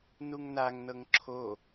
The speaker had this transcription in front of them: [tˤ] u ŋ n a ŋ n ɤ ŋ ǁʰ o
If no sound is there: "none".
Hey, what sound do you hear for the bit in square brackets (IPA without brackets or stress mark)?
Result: n